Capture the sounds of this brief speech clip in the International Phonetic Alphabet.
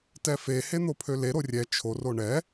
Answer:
t ɛ f e h e n̪ o pʰ ø l e ɾ o rʲ ɛ t͡ʃʰ o r o ɳ ɛ

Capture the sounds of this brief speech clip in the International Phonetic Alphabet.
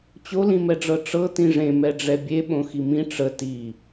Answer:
t͡ɕ o l ĩ m ɛ ɖ͡ʐ ɤ ʈ͡ʂ ɤ t ĩ ʐ ẽ m ɛ ɖ͡ʐ ɛ bʲ e ɓ õ x i m ĩ ʈ͡ʂ ə t i

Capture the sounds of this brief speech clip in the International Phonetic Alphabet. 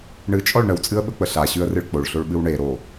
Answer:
ɳ ɨ t͡ʃʼ ɔ ɭ ɳ ə w t͡sʼ ɨ ə̯ ɓ ə k͡p ə ɬ a ɕ ʉ ə̯ r ɨ ɭ k͡p o ɭ ɬ o ɭ ɓ ɨ w ɳ e ɾ o

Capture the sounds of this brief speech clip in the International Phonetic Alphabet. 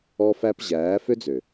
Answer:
ɔ˧ f æ˧ p ʑ æː˨˦ f ø˦ d͡z ø˨

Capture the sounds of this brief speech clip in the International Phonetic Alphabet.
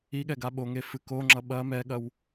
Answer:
i ɠ ɛ ɡ a ɓ o ŋ e f ɨ k o ŋ͡ǁ ʌ ɓ ɐ m ɛ ɠ ɐ w

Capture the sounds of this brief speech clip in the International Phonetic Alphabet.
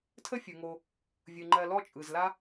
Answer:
tʰ ə˥ fʲ ɯ˩ ŋ o˨ | vʲ ɯ˩ ŋ͡ǃ ɜ˨ l ɔ˦ t͡ʃʼ ɯ˩ z l a˥

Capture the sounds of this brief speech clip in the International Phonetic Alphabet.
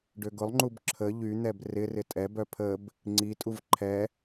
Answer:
ɖ ø ɡ ʊ lˠ ŋ͡ǃ u b ǁʰ ə ʎ y n̪ ɛ b r ɪ r ɪ tʼ ɛ b œ pʰ ə b | ŋ͡ǀ i tʼ u v ǃʰ ɛ

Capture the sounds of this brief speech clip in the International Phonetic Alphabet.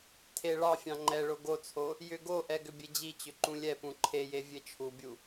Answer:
tʰ e ɭ ɑ fʲ ɑ̃ ŋ͡ǃ ɛ ɭ o ɡ o t͡sʰ o | j ʏ ɡ o ʔ ɛ ɡ ʏ bʲ e d͡ʑ i t͡ɕ ʏ ǃ ũ lʲ ɛ p ũ ǃʰ e j e vʲ e t͡ʃʰ u bʲ u

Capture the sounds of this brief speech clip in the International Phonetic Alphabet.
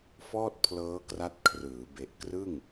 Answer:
f ɔː˥˩ t̚ pʰ l ɤː˦˥ k r a˦˥ t̚ kʰ r ɯː˩˦ b e˨˩ ʔ k r ɯ˥˩ ŋ

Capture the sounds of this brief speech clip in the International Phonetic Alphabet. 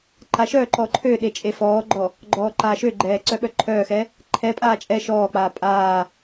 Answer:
ǃ a ʃ œ ǃ ɔ ǃʰ ø ɗ e t͡ʃʼ e f ɔː ɡ͡ǃ ɔ | ɡ͡ǃ ɔː ǃ aː ʃ ø ɡ͡ǃ ɛː ǀ œ ɓ œ ǃʰ œː x ɛ | ǃʰ ɛ pʼ aː t͡ʃʼ ɛ ʃ ɔː k͡p aː pʼ aː

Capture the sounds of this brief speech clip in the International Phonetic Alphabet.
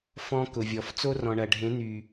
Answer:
f ɔ̃˧ k ʊ˨ vʲ ɔ˨ f t͡s o˦ r ɔ̃˨ ɳ ɐ˨ ɖʱ ẽ˨˦ n̪ y˨

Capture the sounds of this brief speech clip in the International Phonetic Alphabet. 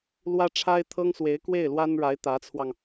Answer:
l w ä˥ ʈ͡ʂʰ a˥ ɪ̯ t̪ʰ ɤ˥ ŋ s w e˧˥ ɪ̯ k w e˥˩ ɪ̯ l w a˥ n ɻ a˧˥ ɪ̯ t̪ ä˧˥ t͡sʰ w ɑ˧ ŋ

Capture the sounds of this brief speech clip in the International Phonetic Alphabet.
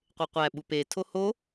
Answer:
qʷ e qʷ æ ɓ u p e tʰ o h o

